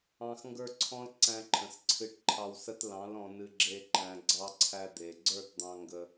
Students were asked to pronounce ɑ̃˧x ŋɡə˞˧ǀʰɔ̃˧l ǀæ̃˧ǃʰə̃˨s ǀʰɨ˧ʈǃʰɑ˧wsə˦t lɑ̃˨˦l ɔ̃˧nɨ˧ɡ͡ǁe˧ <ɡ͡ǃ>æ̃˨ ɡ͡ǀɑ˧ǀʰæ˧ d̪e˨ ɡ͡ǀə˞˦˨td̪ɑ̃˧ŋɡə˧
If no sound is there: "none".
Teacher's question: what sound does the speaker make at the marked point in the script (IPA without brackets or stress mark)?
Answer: ǃ